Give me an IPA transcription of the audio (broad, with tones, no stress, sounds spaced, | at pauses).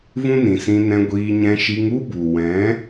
v ũ˦ n ĩ˨ s ĩ˧ n ɛ̃˧ ɡʷ iː˧ ɲ ɛ̃˧ ʃ i˧ ŋ u˦ b u˨ w ɛ̃˨˦